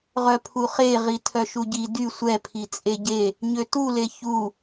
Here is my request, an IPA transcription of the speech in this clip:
ʁ œ pʰ u χ e ʁ i tʰ œ ʃ u ɟ i d y sʷ ɛ pʰ i t͡sʼ e ɟ e | ɲ ø t u l e ç u

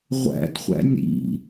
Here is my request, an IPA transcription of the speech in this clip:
ʁʷ æ̰ d χʷ æ̰ nʲ ɾ ḭ

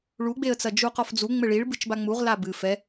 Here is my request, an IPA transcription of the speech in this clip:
ɭ u ɡ͡b e ə̯ t͡s ɐ d͡ʒ u q ɔ f d͡z u ŋ͡m ɘ ɭ i ɭ b ɨ t͡ʃ b a ŋ͡m u ʁ l a b ɨ f ɛ

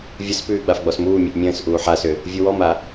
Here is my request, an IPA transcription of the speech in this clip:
vʲ ə s p ʉː ɡ͡b a f ɡ͡b ɔ s m uː mʲ ʉ ʔ mʲ ə̃ː s ʔ uː ħ a s ʏ | vʲ u w ɔ m a

